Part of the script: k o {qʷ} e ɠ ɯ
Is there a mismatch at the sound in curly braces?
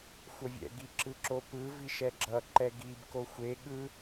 yes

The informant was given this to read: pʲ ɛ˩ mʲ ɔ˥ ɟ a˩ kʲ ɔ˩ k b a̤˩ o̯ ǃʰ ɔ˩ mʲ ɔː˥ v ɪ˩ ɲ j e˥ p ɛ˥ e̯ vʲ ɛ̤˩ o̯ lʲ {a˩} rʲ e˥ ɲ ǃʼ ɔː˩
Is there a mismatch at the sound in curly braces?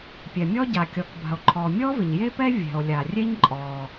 no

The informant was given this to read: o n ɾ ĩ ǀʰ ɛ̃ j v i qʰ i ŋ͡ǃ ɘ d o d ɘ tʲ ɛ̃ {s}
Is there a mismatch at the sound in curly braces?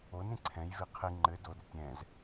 yes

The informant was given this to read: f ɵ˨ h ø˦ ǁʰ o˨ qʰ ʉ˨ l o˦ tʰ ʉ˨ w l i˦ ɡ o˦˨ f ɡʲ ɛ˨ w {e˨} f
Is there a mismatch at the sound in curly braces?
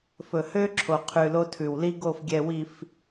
yes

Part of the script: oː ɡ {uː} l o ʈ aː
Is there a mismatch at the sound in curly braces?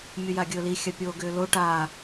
yes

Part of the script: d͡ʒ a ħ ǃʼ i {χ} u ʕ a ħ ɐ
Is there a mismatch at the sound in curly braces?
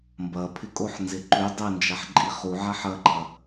no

